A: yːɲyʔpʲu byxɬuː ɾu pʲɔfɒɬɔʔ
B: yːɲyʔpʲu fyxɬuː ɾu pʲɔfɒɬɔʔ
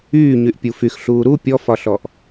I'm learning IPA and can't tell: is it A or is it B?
B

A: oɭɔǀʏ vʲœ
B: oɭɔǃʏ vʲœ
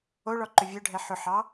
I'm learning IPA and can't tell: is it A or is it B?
B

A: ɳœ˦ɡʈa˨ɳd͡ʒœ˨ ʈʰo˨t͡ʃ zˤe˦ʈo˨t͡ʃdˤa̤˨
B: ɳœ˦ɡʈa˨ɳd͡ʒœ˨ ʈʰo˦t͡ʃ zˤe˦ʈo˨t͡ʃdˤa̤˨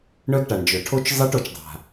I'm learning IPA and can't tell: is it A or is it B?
B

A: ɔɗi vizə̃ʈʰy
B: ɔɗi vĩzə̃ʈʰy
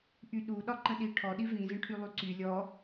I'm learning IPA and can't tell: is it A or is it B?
B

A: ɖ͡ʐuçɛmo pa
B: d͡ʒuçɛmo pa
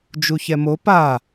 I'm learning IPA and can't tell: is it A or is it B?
B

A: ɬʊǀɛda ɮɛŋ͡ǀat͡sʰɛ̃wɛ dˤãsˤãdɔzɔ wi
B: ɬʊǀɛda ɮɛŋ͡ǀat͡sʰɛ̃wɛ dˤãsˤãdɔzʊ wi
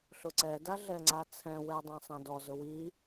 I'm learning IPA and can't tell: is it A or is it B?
B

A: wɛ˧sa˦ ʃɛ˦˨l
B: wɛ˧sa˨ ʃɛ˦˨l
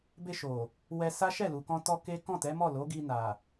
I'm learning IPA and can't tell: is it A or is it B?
A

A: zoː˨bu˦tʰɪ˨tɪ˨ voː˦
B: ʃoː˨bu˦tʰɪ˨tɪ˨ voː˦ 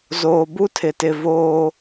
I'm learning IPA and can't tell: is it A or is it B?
A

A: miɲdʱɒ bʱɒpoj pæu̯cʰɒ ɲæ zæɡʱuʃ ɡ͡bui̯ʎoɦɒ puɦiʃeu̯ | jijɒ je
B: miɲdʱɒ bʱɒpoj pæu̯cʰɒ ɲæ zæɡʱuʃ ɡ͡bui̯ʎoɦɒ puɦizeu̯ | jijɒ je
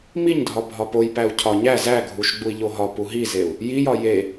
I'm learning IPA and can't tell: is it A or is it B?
B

